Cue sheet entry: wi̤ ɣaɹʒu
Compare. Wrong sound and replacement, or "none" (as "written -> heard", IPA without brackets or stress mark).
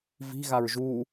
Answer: w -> v